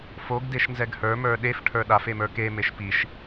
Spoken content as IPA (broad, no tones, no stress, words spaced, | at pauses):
foɡ deʃnzɛɡhə˞ mə˞ɗef ʈʰə˞ɗaf emə˞ke meʃpiʃ